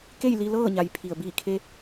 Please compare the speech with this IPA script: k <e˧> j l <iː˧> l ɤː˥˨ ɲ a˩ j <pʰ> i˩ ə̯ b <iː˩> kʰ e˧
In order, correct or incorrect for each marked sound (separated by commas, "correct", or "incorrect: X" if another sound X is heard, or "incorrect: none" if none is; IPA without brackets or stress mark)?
incorrect: e˥˨, incorrect: i˧, correct, incorrect: iː˧˩